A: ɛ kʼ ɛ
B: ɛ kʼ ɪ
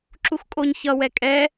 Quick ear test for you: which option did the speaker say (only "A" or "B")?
A